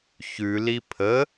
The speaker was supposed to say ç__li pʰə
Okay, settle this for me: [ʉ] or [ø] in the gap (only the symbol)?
ʉ